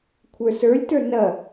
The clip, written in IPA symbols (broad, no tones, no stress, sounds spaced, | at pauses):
kʷʰ ə˞ s ə˞ lʲ t ə˞ n ɐ